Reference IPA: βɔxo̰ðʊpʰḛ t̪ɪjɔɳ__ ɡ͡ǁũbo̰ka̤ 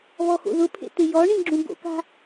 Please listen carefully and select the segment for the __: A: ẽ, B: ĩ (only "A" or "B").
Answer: B